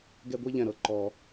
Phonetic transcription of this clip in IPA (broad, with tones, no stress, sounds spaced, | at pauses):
ɡ ɛ˥˧ ɡʷ i˥ ʎ ɛ̃˧˩ ɾ ɤ˧ ǃ ɔ˧